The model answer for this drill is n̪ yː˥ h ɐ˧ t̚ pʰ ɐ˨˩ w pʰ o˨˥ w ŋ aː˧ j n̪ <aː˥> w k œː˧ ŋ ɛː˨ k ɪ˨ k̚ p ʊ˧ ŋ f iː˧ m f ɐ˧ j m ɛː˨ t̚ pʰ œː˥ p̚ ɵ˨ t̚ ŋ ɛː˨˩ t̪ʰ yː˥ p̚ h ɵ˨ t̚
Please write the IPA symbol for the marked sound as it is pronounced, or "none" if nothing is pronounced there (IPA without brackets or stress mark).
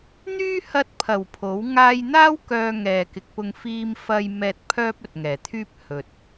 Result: aː˥